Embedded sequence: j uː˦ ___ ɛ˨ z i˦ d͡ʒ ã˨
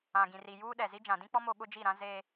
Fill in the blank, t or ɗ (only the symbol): ɗ